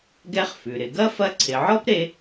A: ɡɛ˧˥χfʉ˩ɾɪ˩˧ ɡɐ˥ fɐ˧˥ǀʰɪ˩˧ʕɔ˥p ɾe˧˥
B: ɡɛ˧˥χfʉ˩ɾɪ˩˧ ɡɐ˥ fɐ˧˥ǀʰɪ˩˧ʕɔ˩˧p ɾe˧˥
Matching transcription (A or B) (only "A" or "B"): A